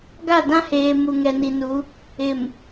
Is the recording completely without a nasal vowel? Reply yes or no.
no